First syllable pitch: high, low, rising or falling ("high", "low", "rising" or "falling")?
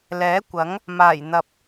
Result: rising